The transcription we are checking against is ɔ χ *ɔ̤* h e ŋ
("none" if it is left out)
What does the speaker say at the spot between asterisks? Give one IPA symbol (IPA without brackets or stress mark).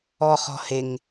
ɔ̤